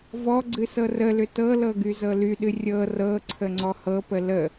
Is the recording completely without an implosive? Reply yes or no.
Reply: no